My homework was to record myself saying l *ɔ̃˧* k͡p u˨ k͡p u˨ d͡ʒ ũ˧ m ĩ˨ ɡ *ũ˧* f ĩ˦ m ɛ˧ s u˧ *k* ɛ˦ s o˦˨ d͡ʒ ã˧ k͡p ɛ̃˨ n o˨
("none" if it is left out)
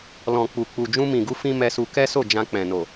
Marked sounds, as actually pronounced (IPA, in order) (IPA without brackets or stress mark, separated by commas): ɔ̃˨, u˧, k